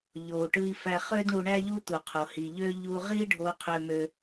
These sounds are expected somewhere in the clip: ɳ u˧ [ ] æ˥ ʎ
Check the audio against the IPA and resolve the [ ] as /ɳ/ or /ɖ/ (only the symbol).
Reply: ɳ